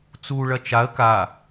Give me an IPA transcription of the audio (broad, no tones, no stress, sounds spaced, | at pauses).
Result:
t͡s u ɭ ɐ t͡ʃ a ə̯ k a